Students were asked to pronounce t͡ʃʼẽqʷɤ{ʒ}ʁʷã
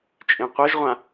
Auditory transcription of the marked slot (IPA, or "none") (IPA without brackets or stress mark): ʒ